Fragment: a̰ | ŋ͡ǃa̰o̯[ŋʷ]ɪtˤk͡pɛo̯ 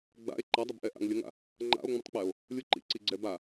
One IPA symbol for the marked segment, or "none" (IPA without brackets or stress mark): ŋ͡m